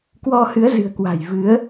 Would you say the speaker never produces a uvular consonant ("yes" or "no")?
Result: yes